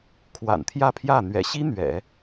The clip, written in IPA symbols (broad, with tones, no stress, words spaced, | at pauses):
kʰwa̰˨˩nt̪ʰjä˥˧pʰjä˥˩ n̪ɥɛ̰˨˩ɕi˥ n̪ɥɛ̰˨˩˦